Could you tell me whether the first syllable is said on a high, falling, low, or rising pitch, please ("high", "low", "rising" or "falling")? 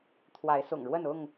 rising